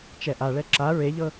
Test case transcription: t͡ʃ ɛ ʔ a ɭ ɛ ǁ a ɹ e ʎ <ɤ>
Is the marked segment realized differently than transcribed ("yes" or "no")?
no